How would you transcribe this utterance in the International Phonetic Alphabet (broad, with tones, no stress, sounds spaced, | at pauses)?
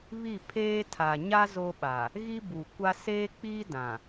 β i˦˨ pʰ eː˦ tʰ a˨ ɲ a˦ z o˦ ɓ a˨ | ɣ i˦ b u˨ kʷ a˦ s eː˦ k͡p i˦ d ã˨